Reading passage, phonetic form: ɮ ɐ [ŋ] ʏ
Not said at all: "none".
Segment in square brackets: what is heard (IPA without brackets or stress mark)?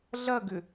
ɡ